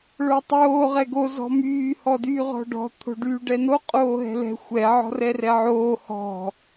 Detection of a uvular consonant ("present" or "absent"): present